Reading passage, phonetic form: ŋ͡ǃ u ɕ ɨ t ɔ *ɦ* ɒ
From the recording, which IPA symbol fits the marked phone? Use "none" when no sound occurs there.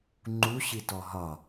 ɦ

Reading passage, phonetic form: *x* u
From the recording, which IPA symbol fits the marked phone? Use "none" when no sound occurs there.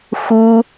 x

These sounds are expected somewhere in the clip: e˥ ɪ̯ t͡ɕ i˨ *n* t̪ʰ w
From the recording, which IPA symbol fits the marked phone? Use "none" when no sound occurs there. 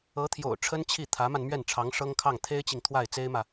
ŋ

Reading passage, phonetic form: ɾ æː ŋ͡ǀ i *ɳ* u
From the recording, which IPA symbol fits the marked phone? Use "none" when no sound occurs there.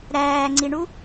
ɳ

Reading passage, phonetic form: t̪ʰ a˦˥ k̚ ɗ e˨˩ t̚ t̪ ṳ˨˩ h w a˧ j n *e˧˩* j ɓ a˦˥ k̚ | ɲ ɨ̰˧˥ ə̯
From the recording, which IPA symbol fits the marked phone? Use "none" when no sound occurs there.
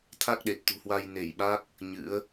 e˧˩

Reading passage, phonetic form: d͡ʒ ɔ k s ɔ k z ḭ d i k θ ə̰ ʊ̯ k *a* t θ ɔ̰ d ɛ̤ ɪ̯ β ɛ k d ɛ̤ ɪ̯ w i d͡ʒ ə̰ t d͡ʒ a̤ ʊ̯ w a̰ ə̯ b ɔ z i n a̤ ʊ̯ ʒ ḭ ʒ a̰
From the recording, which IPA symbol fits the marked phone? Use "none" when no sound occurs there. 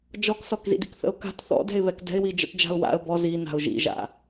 a̤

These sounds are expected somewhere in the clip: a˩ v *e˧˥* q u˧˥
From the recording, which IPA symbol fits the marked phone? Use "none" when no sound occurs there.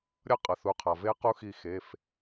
e˧˥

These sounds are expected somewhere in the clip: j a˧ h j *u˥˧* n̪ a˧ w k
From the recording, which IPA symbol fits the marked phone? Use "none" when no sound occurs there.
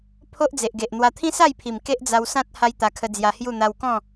u˥˧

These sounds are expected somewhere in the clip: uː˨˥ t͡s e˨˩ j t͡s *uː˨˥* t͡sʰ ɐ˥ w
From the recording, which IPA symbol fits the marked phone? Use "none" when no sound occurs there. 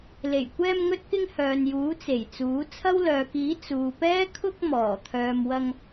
uː˨˥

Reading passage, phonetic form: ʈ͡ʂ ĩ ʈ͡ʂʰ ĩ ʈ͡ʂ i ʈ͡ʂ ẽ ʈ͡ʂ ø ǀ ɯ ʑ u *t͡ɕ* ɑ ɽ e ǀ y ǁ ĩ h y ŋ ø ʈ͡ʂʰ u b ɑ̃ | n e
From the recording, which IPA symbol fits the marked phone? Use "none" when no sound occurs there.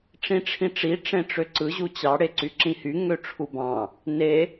t͡ɕ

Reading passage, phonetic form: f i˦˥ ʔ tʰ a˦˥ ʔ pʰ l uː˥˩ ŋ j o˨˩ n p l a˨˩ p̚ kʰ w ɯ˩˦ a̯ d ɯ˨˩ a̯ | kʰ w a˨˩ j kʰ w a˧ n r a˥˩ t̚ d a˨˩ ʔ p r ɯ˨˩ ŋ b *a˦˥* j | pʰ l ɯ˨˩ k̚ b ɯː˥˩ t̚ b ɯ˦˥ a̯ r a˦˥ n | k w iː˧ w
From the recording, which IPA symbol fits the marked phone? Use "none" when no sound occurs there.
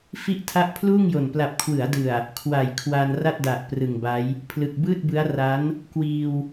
a˦˥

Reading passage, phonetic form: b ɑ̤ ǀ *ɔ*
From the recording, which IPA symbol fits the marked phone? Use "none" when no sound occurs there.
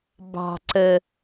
ə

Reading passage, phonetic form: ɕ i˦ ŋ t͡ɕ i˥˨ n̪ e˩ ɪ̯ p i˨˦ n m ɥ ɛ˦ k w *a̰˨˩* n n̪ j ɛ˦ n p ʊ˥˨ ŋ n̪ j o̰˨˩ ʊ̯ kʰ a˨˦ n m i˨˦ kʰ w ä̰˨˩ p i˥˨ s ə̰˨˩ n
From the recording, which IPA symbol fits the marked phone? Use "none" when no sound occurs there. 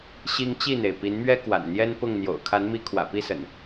a̰˨˩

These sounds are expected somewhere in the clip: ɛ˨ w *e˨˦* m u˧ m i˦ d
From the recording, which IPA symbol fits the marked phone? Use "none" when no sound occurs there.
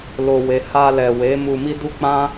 e˨˦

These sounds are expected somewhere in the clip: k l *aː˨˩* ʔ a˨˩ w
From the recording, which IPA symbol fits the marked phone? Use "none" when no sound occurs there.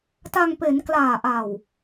aː˨˩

